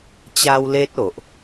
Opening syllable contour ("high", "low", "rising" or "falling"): high